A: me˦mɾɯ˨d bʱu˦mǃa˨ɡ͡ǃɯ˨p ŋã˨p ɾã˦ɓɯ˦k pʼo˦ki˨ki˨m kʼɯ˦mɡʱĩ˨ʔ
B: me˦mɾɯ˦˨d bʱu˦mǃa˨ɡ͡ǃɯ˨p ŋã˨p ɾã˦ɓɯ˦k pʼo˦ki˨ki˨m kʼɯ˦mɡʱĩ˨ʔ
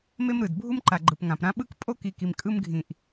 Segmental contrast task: A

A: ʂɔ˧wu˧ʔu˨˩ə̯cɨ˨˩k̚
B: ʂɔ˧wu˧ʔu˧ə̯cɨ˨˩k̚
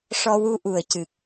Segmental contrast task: A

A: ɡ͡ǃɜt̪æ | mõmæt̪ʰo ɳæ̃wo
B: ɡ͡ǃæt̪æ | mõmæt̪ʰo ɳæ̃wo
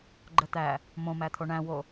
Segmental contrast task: A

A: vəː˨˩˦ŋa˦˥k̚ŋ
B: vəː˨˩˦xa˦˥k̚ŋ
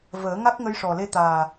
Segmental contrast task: A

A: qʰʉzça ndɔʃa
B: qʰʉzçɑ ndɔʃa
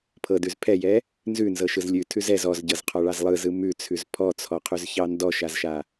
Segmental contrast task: B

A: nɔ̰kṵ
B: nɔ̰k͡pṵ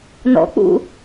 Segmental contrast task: B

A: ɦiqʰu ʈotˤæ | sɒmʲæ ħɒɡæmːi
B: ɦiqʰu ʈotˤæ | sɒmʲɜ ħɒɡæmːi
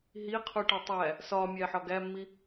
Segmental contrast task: A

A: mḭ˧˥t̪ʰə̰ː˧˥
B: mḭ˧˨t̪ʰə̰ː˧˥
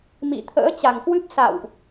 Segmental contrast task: B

